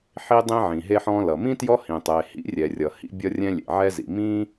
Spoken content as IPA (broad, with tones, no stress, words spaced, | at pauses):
ħi˥dˤĩ˥ ʕĩ˩ɦe˥ħɔ̃ː˥lʌ˩ mĩ˥ tjɔ˥hĩ˩ tˤe˩hḭ˥rʲɛ˩ rʲʌ˩hḭ˥ bʲʌ˥rʲɛ̃˥lʲḛ˩ ʕɛ˥zḭ˩ mĩː˥